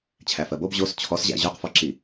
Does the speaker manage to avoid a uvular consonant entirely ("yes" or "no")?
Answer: no